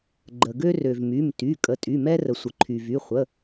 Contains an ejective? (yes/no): yes